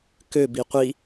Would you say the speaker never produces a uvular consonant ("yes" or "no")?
no